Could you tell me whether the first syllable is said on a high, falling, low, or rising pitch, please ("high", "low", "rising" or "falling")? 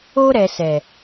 high